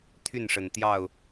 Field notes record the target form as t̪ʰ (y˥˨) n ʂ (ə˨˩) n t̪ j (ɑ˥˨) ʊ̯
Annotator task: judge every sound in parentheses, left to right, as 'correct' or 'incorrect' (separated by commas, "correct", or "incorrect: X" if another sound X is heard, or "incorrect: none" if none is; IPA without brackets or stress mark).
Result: correct, correct, correct